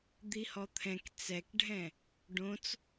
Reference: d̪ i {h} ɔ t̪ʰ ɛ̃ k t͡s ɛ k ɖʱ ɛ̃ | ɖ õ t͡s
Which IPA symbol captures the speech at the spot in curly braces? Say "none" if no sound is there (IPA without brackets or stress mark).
h